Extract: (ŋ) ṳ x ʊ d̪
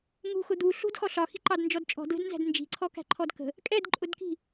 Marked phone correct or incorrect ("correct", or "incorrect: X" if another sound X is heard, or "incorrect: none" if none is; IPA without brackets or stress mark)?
correct